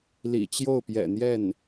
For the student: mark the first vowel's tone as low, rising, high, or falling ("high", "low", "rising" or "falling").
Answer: low